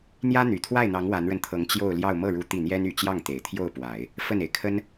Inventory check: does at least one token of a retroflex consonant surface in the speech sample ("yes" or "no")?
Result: yes